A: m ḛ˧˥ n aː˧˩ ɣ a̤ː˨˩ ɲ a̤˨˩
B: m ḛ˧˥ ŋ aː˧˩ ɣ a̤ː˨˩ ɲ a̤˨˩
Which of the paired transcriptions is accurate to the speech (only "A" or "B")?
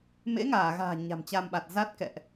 B